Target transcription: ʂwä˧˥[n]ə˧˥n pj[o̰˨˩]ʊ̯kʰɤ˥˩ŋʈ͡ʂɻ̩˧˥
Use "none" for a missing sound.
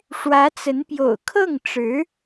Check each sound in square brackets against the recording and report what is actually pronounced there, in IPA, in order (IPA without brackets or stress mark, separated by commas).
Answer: t͡s, o̰˨˩